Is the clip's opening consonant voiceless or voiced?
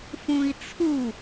voiceless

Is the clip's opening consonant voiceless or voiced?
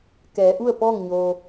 voiceless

